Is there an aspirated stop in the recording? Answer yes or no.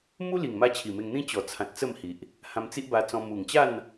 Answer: yes